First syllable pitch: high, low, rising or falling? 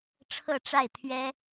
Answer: falling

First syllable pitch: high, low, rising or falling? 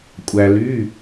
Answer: low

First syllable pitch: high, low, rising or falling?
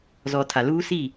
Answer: low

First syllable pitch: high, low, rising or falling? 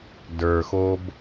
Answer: low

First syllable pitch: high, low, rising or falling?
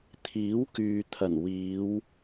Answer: rising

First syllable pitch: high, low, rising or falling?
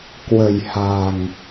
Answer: low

